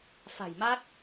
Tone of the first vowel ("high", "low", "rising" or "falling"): low